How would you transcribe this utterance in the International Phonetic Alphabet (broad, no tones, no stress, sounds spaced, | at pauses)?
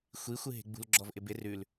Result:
xʷ i xʷ ɨ ɦ e̤ ɡ͡b ṳ l ɡ͡ǁ ɔ v ʔ ɪ b ɪ r ʉ l